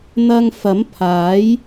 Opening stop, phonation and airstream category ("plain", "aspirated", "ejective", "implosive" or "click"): aspirated